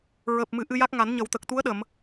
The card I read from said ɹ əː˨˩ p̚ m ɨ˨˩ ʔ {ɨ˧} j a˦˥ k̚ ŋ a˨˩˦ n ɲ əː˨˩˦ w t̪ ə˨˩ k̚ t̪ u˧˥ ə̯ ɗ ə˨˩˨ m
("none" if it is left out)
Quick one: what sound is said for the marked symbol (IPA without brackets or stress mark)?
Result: ɨ˧